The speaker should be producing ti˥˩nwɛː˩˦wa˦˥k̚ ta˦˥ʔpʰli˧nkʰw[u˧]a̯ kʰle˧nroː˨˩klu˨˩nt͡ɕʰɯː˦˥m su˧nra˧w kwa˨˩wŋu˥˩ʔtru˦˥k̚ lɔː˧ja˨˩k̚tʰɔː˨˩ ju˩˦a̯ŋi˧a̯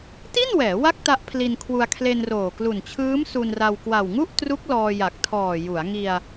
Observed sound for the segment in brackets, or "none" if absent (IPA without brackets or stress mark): u˧